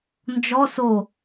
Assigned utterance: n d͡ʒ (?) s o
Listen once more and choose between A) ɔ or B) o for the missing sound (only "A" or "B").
A